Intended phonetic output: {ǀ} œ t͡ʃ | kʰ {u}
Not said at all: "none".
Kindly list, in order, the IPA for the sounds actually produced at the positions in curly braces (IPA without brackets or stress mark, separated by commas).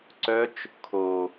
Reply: ǀ, o